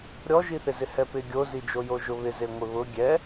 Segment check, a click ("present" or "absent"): absent